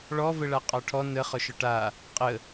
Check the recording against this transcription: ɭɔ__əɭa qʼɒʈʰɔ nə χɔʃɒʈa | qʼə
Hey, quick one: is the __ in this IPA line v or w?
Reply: v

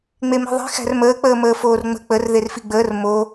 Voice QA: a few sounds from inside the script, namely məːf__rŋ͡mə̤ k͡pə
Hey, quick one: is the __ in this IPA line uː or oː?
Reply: oː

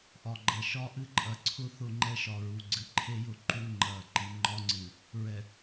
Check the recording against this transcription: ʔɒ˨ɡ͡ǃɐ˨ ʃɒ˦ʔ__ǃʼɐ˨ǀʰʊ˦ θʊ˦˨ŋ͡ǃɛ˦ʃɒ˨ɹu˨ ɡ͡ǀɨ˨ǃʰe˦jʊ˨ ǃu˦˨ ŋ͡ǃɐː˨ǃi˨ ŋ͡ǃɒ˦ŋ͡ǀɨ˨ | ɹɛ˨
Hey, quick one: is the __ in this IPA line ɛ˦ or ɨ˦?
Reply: ɨ˦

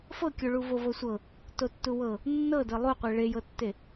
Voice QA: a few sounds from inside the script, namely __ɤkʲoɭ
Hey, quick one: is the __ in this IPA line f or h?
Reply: f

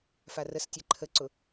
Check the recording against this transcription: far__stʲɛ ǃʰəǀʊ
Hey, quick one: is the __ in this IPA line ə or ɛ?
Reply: ə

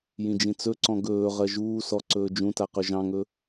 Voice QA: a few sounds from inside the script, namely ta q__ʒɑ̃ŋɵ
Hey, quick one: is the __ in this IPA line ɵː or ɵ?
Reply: ɵ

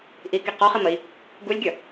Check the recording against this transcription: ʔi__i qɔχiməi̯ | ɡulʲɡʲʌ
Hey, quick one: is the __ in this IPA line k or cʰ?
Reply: k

